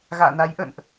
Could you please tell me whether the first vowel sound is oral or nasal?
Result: oral